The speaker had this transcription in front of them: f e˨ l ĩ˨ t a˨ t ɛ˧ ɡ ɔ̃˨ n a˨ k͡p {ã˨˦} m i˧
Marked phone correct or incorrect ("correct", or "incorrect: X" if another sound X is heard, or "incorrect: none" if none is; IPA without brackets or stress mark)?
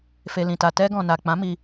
correct